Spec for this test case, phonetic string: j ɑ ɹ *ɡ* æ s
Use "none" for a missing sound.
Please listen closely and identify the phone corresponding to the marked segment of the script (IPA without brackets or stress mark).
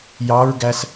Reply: ɡ